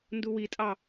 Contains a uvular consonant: no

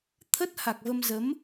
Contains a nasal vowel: no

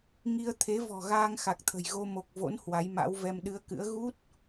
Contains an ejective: no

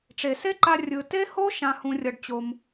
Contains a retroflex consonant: yes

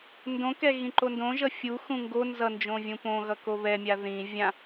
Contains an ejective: no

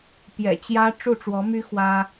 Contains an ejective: no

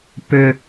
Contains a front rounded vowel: yes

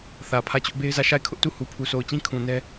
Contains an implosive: no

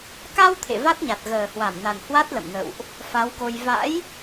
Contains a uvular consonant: no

